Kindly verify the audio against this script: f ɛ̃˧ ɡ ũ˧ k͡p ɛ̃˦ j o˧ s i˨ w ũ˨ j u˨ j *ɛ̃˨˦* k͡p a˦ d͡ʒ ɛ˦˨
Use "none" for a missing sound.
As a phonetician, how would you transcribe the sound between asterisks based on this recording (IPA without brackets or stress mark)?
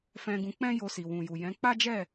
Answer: ɛ̃˨˦